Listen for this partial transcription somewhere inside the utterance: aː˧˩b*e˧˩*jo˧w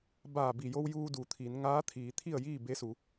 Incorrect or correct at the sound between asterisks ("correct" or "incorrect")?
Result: incorrect